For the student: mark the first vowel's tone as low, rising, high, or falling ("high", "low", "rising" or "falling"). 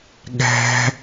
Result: high